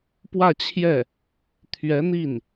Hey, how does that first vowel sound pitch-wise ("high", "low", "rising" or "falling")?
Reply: falling